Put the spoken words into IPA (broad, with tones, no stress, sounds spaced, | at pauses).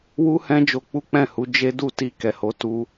w u˦ h ɛ̃˦ d͡ʒ o˧ k͡p u˦ k͡p ɛ̃˦˨ h u˨˦ d͡ʒ e˦ d u˦˨ t i˧ k ɛ˨ h o˨˦ t u˦